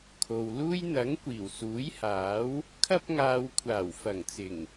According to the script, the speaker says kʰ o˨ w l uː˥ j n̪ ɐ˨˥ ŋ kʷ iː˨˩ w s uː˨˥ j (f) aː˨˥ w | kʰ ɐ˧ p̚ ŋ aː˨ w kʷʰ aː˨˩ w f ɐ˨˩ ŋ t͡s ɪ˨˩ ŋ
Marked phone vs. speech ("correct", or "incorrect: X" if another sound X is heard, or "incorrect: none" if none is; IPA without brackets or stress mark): incorrect: h